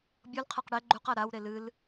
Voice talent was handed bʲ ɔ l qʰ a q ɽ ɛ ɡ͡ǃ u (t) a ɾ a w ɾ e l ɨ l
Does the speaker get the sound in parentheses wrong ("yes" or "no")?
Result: yes